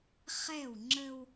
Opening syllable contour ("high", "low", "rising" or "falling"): falling